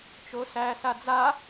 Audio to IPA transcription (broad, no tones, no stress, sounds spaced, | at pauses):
t͡ʃ o s æ s a d͡z a